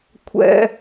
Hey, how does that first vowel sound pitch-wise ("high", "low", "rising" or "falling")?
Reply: high